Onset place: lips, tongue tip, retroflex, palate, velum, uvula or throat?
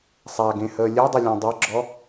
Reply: tongue tip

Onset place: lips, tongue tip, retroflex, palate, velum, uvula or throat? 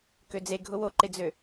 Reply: velum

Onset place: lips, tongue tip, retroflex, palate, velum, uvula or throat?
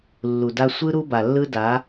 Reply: tongue tip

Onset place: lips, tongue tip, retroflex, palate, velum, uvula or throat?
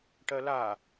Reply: retroflex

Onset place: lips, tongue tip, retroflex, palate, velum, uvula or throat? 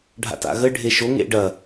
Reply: retroflex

